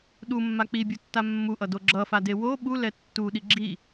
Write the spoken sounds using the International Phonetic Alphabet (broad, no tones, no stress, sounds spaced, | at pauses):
ɗ u mː a k͡p i bʲ u tː a mː u ʔ ʌ d o ɡ͡ǁ ʌ f a d e w o ɓ u l ɛ tː u ɗ i ɡ͡ǁ i